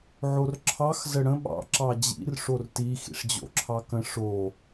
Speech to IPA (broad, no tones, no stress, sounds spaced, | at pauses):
ʕ o r ǁʰ ɑ x z ə ɽ ə̃ ɓ ɑ̰ ǁ ɑ d͡ʑ ḭ r ʂ o r t i x ḭ ʂ d͡ʑ o̰ ǁʰ ɑ k ə̃ ʂ o